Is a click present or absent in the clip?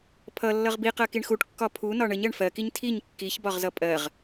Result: absent